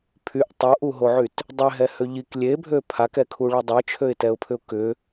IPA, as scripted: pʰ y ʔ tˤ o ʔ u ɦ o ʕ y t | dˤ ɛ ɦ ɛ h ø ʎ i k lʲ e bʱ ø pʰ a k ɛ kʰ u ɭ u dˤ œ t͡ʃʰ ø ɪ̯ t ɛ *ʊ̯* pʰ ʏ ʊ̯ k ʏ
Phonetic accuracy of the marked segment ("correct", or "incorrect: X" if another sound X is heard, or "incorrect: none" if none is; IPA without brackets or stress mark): correct